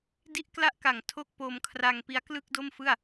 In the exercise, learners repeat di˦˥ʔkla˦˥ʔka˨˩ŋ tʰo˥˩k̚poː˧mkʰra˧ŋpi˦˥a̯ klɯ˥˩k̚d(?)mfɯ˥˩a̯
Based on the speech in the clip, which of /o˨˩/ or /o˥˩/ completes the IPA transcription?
o˥˩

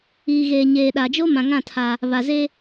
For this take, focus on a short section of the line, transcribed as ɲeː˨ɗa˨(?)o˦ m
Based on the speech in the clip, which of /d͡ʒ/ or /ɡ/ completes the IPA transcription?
d͡ʒ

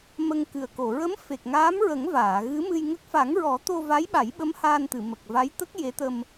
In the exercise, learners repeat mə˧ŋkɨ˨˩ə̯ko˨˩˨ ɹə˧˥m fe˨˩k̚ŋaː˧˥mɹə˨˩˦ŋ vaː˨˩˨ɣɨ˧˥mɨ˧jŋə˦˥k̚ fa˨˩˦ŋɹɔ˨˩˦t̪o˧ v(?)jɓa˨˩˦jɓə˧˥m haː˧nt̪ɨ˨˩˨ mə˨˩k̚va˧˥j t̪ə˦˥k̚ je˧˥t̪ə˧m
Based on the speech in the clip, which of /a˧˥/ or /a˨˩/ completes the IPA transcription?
a˧˥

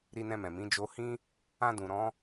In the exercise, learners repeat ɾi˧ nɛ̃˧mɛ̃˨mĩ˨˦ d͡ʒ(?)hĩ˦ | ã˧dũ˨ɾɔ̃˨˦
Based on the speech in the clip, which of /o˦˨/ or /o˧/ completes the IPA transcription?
o˧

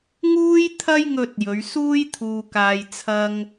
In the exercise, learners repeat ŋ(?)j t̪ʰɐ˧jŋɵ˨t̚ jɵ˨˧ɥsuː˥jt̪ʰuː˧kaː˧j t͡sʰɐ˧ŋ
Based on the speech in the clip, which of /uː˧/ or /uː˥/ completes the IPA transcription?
uː˧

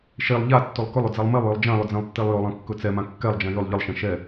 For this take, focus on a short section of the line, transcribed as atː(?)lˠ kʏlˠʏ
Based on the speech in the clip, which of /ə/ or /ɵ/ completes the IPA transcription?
ɵ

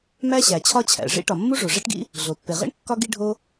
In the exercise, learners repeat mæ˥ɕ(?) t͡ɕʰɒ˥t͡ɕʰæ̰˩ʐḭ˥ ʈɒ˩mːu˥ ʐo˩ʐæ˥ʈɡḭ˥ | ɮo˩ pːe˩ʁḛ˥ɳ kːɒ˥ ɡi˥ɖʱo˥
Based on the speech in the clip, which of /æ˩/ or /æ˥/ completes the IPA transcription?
æ˩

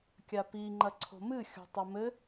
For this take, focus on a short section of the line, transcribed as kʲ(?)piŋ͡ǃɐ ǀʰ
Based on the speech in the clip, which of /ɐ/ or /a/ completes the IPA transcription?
a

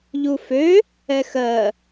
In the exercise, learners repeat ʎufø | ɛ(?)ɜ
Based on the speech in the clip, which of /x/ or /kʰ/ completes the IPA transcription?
x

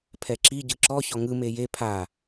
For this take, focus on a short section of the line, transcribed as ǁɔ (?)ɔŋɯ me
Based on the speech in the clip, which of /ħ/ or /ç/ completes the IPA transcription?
ç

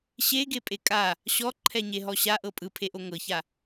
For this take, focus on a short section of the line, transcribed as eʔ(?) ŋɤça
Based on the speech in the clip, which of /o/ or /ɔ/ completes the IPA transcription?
o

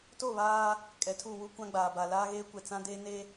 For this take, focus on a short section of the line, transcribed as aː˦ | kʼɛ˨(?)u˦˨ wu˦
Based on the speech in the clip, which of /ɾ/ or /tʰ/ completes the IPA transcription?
tʰ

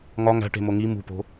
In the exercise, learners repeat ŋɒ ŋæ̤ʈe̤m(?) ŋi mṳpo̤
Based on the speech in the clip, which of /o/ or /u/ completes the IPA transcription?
o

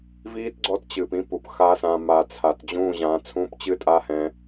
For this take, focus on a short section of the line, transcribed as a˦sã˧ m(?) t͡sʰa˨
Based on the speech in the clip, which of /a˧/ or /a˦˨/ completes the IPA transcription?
a˧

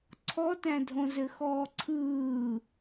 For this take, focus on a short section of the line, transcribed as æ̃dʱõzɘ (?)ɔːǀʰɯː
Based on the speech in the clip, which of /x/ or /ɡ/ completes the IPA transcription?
x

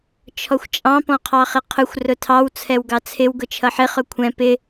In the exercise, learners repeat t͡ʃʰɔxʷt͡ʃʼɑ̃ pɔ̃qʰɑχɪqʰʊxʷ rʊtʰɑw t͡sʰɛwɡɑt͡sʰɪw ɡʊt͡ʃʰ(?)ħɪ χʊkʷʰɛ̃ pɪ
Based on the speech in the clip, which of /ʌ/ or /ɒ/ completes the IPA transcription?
ʌ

